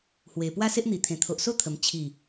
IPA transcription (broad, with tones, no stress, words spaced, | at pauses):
hwe˨˩ pwa˦se˦ʔn̪i˨˩t̪ʰẽ˨˩ t̪ʰo˨ʔso˦t̪ʰə˨˩m t͡ɕʰi˨˩